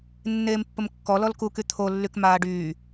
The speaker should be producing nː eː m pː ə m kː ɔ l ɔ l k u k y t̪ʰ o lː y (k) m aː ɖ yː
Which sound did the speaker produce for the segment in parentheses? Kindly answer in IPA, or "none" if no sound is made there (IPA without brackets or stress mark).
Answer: k